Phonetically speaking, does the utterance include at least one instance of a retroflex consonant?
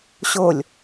no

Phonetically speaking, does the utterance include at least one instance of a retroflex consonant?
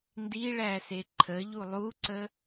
yes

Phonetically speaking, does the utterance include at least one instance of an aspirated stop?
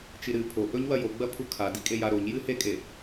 yes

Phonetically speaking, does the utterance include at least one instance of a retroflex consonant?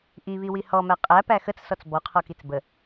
no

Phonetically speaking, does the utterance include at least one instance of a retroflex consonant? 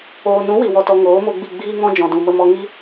no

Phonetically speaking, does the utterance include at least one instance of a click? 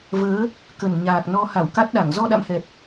no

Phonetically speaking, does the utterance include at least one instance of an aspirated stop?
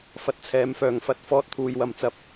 yes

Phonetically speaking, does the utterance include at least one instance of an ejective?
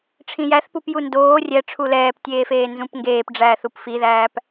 no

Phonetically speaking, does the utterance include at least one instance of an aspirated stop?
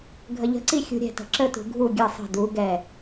no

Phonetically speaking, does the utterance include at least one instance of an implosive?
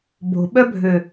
yes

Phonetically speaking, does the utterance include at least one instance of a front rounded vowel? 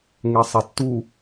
no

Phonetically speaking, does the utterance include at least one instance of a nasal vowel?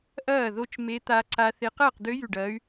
no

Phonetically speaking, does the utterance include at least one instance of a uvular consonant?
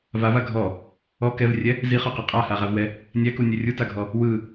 yes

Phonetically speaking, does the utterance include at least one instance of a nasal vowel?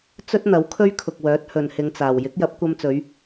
no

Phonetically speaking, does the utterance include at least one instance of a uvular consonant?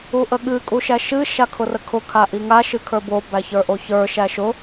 no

